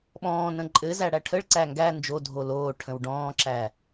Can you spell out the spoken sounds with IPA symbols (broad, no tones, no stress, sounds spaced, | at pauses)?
ɓ ɔ̃ː n ə̃ ǃʼ ɘ z æ ɽ æ ʈʰ ə ɭ ǀ æ ŋ ɡ æ n d͡ʒ o dʱ o l oː ʈʰ ə̃ w ɖ ɔ̃ː ǁ æ